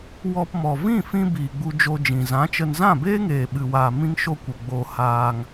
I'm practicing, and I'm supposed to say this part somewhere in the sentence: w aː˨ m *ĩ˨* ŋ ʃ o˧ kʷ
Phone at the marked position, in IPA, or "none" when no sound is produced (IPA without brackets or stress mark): ĩ˧